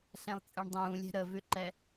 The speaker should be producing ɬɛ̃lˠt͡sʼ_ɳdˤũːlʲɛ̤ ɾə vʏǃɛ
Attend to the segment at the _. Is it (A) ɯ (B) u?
A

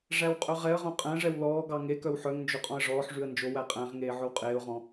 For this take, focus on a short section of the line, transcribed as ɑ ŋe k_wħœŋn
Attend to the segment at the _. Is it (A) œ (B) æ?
A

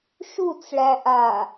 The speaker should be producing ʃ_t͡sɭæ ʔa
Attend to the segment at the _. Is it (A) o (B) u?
B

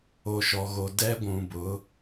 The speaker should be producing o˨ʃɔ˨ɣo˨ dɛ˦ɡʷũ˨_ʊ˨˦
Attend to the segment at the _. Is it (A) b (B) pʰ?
A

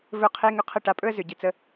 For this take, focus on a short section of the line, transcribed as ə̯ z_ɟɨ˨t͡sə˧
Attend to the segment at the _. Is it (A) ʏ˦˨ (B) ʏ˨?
B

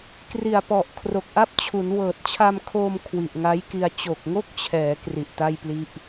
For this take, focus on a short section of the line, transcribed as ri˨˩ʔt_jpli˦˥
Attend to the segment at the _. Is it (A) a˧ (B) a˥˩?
B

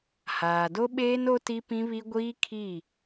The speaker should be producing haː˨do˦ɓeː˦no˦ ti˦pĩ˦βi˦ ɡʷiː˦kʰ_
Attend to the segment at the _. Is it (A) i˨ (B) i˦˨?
B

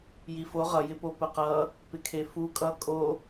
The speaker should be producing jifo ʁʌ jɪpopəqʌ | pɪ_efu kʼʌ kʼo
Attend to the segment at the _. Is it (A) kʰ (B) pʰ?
A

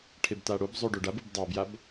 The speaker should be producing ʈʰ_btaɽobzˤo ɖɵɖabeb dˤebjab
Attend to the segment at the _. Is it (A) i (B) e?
B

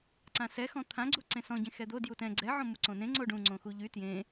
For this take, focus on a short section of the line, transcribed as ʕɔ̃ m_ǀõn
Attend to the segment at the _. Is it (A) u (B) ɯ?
A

